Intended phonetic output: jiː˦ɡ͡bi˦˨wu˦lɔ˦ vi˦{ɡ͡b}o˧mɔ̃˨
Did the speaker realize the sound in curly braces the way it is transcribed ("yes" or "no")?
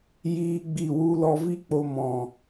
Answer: no